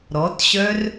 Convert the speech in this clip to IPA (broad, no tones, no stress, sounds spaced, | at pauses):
ɾ ɔ t ɕ œ r